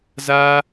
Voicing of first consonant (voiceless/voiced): voiced